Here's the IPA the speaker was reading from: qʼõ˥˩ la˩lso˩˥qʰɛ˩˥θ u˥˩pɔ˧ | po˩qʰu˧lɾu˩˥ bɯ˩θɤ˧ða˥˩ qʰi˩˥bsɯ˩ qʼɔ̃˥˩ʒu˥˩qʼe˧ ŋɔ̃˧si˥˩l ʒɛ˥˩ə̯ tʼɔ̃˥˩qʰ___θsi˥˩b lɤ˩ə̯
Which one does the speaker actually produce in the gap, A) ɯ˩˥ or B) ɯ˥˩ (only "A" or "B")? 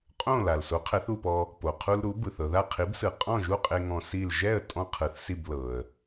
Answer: A